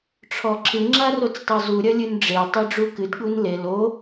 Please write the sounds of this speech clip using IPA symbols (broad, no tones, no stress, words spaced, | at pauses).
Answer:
ʈ͡ʂʰɔǁɨ ŋ͡ǁarot͡stˤozu ɾʲɐlʲɨnɖ͡ʐe tˤiɖ͡ʐukɨd ɠunle lo